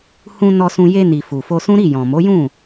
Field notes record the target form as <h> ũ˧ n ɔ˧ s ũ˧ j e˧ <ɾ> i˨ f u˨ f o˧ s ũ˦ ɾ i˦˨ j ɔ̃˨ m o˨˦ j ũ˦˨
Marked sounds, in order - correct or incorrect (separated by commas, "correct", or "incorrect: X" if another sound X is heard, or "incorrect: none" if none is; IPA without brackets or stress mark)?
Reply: correct, incorrect: n